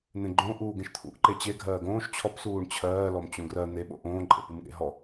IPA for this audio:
n̪ ẽ ɡ͡ǃ õ ʔ uː ɡ ẽ ʃ t̪ʰ ṵ ʔ ǃ e t͡ɕ e ɡʱ ɜː ɡ õː ʃ t͡ɕʰ ɔ p s uː ɳ t͡ɕʰ ɜː l ɔ m t͡ɕ õ ɡ r ɜ n̪ e ɓ o̰ ʔ õː ǃʼ ḛ p u m ɠ ḛ ɦ ɔ

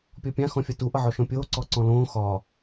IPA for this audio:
pʲ ɔ pʲ ã x ɔ̃ fʲ ɒ t u ʔ ʌ ʕ ɔ ʃ ɔ̃ pʲ oː ǀ ɔ ǀ ɔ̃ l õː x ɒ

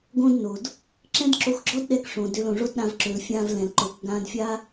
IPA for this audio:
ɡ õ˦ d n o˨ d | ǁ ɛ̃˦ d ǁ o˧ x ɡ͡ǁ ɔ˦ d ɗ ɛ˧ k ʂ õ˨ d ø˧ l õ˨ ʐ o˦ d ɗ ã˧ v ǁ ø˨ l fʲ ã˧ v l ɛ̃˨ l ǃ o˨ k ɡ ã˧ d fʲ a˦

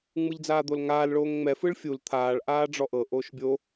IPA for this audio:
ŋ͡m ɯ ʎ d͡z aː d̪ o l ŋ aː l ɭ oː ŋ ŋ͡m ɛ f ɯ ɭ fʲ u l t̪ʰ aː ɭ ʔ aː ɖ͡ʐ ɔ ʔ ɤ ʔ oː ʃ bʲ o

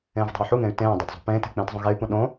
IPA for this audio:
ẽː v dˤ e̤ u̯ ħ u ŋ ẽ y̯ t ẽː dˤ o d zˤ ṳ p ẽː t e̤ k͡p ẽː t zˤ õ ɣ e y̯ p ũ ɗ õ

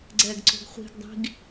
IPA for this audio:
ɡ͡ǀ ɛ ɡ ǀ o̤ ɡ χʷ i̤ ɡ dˤ i̤ ɡ

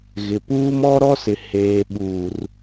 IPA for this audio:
ɣ ɪ˨ p uː˦ m ɔ˦ ɾ ɔ˦ s ɪ˨ h eː˨ ɓ uː˨ r

